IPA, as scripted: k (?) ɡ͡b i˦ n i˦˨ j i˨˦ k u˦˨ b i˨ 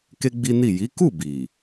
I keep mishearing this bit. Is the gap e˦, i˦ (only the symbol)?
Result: e˦